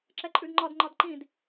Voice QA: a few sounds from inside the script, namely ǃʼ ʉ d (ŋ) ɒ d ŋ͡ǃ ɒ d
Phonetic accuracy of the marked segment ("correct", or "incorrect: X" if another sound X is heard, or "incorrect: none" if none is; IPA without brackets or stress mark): incorrect: ŋ͡ǃ